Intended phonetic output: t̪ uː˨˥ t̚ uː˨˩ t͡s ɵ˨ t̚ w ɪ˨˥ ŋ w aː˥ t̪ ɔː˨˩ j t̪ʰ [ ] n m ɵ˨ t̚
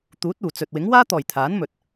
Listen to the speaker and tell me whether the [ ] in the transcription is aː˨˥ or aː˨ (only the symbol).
aː˨˥